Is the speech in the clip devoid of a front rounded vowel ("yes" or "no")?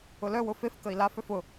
no